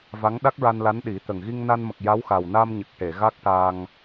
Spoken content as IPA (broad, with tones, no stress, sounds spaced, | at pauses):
v a˧˥ ŋ ɗ a˦˥ k̚ ɹ a˧ n l a˧˥ n ɗ i˨˩˦ t̪ ə˨˩ ŋ ɣ i˧ ŋ n a˧ n m ə˨˩ k̚ j a˧˥ w x a˨˩ w n a˧ m ɲ ə˨˩ k̚ ʈ e˨˩˨ ɣ a˦˥ k̚ ʈ a˧ ŋ